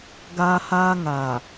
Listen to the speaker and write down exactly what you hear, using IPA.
ɡ aː˦ h aː˦ ŋ a˨

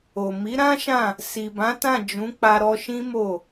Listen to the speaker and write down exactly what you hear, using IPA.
o˨ m i˨˦ ɾ ã˦ ʃ ã˦˨ | s i˨ b ã˨˦ t ã˦˨ d͡ʒ ũ˨˦ k͡p a˧ ɾ ɔ˧ ʃ ĩ˦ m o˦˨

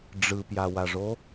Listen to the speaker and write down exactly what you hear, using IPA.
ɖ͡ʐ ɯ p j a w a ʐ o

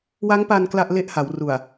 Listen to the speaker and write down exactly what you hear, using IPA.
w a˦˥ ŋ p a˧ n k l a˥˩ ʔ l e˥˩ ʔ h a˩˦ w r u˨˩ a̯

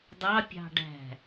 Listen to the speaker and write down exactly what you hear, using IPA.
dˤ ɑ pʲ ɑ̤ ɖ æ̤

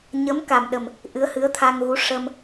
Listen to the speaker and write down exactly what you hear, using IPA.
ɲ ə˧˥ m k a˨˩ m ɗ ə˨˩ m | ʔ ɨ˧˥ ə̯ h ɨ˧˥ ə̯ t̪ʰ a˧ ŋ ɣ u˧˥ ʂ ə˧ m

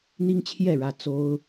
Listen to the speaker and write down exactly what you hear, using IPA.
n̪ i˦ ŋ t͡ɕʰ j ɛ˥˨ ɻ ä˥˨ t͡s o˦ ʊ̯

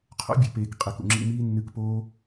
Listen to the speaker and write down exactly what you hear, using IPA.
qʰ o̰˦ bʲ ʉ˨ p eː˨ k qʼ e˨ k ṵ˨ ŋ͡ǁ ḭ˧ m iː˦ nː ɨ˧ k p oː˦

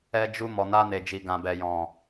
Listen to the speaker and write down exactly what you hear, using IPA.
ɛ˧ d͡ʒ u˧ m ɔ˨ n a˧ n e˨ d͡ʒ i˨ ɡ ã˨ b ɛ˨ j ɔ̃˨

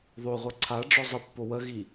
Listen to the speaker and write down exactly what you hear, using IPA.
ðˤ o ʁʷ ɜ ǀʰ a ɖ͡ʐ ɔ zˤ ə pː o w ə ɣ i

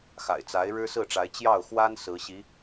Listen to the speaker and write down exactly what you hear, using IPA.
x a̰˨˩ ɪ̯ t͡s a˧˥ ɪ̯ ɻ ɻ̩˥ s ɹ̩˥˩ ʈ͡ʂ a˧˥ ɪ̯ t͡ɕ j ɑ˥˩ ʊ̯ x w a˥ n s ɹ̩˧˥ ɕ i˧˥

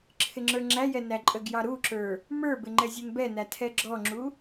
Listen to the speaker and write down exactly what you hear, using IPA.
ǁʰ ɪ ŋ͡ǁ ə˞ ŋ͡ǁ æ j ɛ n æ ǃʼ ə ɡ j ɑ ɾ u ǁ ə˞ | m ə˞ b ɪ ŋ͡ǃ ɛ zʲ ə˞ n b ɛ n æ tʰ ɛ ɡ͡ǁ ɔ ŋ͡ǁ u

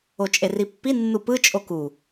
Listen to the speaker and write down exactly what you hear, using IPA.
o t͡ʃʼ e r i pː i nː u p ɯ t͡ʃʼ o k u

